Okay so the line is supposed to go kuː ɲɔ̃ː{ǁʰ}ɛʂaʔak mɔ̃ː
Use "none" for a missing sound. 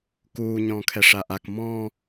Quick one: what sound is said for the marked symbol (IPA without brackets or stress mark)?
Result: kʰ